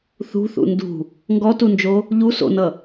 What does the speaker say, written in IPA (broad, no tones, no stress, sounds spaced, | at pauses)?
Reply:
θ ṳ θ ṵ n d ṳ | ŋ ɡ ɔ t u n d͡ʒ o | ʎ u s o̰ n ʌ